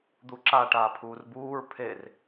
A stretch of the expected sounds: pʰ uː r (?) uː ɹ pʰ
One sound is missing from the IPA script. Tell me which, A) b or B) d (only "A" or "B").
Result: A